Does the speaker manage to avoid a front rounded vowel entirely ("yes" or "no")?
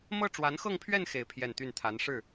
no